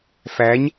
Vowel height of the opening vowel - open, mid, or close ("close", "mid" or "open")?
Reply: open